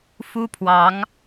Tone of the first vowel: high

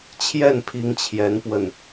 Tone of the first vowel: falling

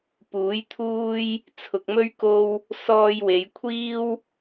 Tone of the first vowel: rising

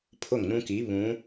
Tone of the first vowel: falling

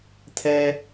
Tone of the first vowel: low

